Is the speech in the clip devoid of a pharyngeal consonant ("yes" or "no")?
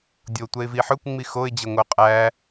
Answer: no